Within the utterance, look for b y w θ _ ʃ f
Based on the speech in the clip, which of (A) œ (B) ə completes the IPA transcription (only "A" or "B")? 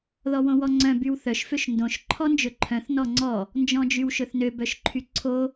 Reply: A